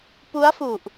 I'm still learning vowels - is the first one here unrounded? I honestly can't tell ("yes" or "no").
no